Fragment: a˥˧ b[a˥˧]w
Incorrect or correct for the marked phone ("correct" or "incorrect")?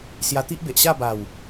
incorrect